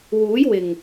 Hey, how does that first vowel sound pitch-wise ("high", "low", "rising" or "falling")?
rising